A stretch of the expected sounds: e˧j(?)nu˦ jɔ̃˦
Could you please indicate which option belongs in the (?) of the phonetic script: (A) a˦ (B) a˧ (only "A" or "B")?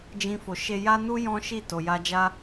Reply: A